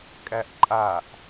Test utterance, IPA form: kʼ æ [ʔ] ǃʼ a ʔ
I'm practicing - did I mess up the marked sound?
no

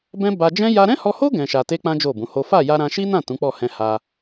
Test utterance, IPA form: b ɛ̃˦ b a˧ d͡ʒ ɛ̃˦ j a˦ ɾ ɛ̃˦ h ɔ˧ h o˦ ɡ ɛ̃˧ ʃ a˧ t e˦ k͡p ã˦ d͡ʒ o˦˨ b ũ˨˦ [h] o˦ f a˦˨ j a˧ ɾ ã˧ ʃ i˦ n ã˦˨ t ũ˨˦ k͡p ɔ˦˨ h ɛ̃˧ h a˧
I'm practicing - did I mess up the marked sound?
no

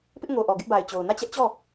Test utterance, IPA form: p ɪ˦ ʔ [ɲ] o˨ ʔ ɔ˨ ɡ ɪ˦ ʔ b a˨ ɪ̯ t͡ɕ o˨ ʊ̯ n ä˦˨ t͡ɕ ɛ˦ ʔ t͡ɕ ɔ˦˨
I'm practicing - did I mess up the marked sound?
yes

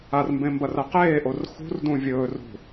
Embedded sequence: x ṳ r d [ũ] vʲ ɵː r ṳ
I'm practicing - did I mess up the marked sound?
no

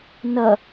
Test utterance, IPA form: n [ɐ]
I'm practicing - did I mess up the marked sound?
no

